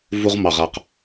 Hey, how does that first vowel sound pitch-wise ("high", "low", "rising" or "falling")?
high